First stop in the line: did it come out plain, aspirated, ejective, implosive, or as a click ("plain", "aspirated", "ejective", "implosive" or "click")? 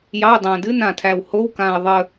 plain